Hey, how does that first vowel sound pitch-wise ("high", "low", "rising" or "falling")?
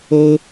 high